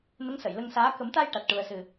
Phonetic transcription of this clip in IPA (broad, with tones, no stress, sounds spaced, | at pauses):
n ə˧˥ ŋ s ə˨˩˨ j l ə˧ ŋ s aː˧˥ k ə˨˩˦ m t̪ a˧ j ʈ a˨˩ t̚ ʈ u˨˩ ə̯ s ɨ˨˩